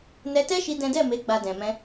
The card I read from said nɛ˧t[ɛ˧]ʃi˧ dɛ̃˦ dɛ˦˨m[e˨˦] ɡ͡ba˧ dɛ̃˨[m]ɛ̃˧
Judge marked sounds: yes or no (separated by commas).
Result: no, yes, yes